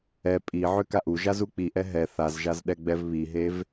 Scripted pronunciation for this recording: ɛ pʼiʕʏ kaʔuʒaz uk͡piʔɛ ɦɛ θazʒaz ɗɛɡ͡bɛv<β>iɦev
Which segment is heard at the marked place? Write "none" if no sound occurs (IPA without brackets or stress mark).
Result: β